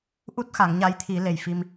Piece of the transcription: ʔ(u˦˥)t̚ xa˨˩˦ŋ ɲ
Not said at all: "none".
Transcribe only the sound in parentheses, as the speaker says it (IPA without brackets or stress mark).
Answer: u˦˥